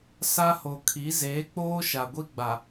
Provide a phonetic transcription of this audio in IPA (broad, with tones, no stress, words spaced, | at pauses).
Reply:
sa˦ho˨ kʰi˨˦zeː˨˦k͡poː˦ ʃa˨ɡʷi˦ɡ͡ba˨